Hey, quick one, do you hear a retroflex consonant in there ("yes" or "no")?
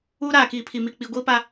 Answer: no